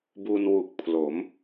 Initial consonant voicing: voiced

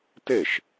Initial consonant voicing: voiceless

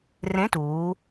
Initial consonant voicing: voiced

